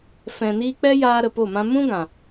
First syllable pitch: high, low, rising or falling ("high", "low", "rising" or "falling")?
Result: low